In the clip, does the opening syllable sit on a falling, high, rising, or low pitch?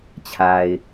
low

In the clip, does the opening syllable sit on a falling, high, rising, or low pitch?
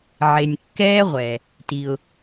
low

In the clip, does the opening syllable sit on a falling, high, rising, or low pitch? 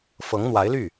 rising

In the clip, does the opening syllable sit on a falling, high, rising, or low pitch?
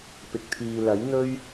low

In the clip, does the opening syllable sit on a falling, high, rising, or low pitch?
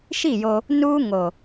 falling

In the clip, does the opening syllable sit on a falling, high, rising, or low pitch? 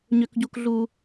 high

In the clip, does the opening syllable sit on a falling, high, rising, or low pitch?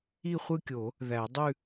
falling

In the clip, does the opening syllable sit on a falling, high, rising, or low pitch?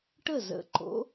falling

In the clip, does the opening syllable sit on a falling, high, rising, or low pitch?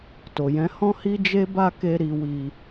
low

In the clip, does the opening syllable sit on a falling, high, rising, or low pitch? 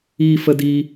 high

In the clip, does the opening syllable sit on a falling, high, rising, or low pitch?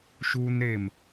high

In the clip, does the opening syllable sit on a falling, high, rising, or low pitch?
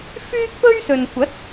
high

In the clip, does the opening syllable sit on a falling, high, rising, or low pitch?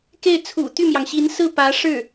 falling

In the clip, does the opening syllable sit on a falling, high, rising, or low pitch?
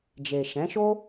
low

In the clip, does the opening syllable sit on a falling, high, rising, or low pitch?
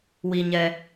low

